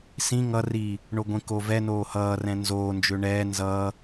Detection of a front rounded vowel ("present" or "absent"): present